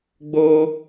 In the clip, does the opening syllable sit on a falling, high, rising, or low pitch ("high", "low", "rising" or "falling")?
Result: high